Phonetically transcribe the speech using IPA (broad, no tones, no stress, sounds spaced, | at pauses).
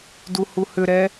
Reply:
d u h u h ʏ ɾ ɛ